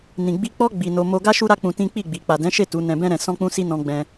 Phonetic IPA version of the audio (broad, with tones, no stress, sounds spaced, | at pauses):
n ĩ˨ ɡ͡b i˧ k͡p ɔ˦ ɡ͡b i˧ n o˧ m o˧ ɡ a˦ ʃ u˦ ɾ a˦ k͡p ũ˧ t ĩ˦ k͡p i˦˨ ɡ͡b i˨ k͡p a˨ d ɛ̃˨˦ ʃ e˦˨ t u˨˦ n ɛ̃˧ b ɛ̃˦ ɾ ɛ̃˧ s ɔ̃˦ k͡p ũ˦ s i˦ n ɔ̃˧ ɡ͡b ɛ̃˧